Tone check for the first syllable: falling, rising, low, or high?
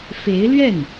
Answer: rising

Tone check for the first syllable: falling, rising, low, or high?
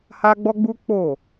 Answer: high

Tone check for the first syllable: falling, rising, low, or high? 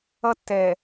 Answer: high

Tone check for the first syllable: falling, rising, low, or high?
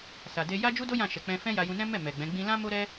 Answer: low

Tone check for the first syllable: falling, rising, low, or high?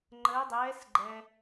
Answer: rising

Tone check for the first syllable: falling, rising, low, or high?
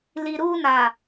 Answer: low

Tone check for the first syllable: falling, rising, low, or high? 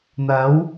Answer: rising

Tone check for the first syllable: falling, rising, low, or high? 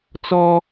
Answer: high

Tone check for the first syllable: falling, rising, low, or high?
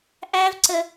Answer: high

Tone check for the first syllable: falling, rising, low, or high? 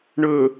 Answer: low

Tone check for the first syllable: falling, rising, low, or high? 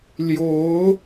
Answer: rising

